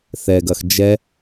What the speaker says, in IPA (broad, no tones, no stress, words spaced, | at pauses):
θɛɡɐx d͡ʒɛ